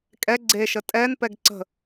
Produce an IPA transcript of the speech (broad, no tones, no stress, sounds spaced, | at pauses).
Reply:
kʼ ɛ ɡ͡ǀ e ʃ ə tʼ ɛ n p ɛ ɡ ǀ ə̤